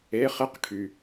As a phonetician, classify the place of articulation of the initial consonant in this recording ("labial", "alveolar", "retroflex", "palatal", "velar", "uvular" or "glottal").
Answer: uvular